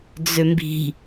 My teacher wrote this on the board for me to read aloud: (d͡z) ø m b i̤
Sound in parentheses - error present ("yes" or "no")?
no